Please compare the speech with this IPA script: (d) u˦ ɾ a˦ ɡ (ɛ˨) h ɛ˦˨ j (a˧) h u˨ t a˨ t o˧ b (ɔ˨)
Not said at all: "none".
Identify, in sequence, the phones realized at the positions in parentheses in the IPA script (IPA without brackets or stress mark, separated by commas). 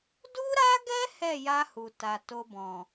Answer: d, ɛ˦, a˧, ɔ̃˨